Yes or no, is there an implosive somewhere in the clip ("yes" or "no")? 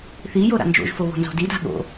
yes